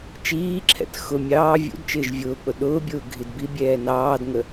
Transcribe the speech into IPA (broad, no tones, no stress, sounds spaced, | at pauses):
t͡ʃ iː ǁʰ ɛ̰ t x ʊ mʲ ɑː vʲ ṵ d t͡ʃ ɪː ʒ vʲ ʊː k͡p ʊ ɗ ʊː bʲ ʊː ɡʱ i d b i bʲ ɛː n ɑː d ŋ ə